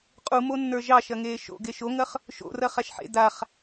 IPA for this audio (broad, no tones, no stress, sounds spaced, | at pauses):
qʼ u m o nː ə˞ ʒ ɑ ʃ ɐ ŋ eː ʃ o̰ ɡ e ʃ o ŋ ɐ χ | ʃ o̰ r ɐ χ a ʃ ħ ḛ d a χ